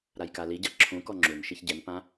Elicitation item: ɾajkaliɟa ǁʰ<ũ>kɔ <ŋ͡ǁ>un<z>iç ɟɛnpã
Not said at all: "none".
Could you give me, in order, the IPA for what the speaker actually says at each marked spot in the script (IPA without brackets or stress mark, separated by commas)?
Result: ũ, ŋ͡ǁ, ʃ